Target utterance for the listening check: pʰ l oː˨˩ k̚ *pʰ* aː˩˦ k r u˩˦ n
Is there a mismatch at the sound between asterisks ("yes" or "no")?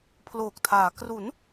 yes